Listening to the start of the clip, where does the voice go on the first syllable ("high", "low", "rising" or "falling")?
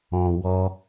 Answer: low